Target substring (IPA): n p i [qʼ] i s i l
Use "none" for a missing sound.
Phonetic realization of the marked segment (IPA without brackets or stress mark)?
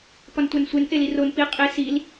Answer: qʼ